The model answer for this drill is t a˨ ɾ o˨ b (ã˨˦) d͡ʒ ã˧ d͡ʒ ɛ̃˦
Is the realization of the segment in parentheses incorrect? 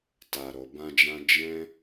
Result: yes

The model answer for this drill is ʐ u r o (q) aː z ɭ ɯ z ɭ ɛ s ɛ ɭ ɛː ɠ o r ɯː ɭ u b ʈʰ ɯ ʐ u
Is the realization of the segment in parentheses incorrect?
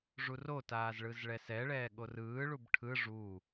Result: yes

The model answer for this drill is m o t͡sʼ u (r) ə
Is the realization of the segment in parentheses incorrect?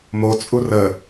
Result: no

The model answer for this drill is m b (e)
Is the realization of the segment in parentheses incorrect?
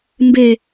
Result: no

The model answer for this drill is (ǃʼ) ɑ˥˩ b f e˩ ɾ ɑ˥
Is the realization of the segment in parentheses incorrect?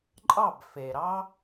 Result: no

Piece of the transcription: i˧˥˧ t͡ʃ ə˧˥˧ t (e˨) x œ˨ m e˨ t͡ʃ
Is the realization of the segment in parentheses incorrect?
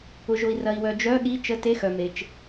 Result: yes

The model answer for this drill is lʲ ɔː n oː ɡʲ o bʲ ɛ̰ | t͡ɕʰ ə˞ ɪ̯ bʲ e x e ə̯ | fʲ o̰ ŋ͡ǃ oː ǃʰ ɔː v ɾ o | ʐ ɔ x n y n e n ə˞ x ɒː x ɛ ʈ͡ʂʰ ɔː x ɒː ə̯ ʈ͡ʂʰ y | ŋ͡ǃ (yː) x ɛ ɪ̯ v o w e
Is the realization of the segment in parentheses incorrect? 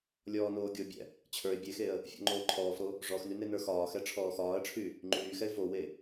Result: no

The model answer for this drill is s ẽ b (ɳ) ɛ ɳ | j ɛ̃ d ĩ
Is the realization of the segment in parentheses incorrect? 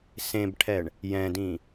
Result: yes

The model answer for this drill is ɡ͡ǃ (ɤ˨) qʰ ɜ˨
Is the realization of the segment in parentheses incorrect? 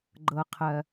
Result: no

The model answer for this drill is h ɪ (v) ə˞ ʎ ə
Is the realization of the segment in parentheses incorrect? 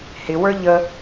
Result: yes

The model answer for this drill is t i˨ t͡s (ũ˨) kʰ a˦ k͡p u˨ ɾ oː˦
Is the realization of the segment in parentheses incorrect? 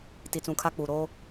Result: no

